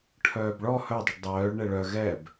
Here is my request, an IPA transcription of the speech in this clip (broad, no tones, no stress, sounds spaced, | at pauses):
ʈʰ œː b ɭ ɔ h œ dˤ u ɖ dˤ œː ɭ ɳ ɛ ɭ œ ɣ ɛ b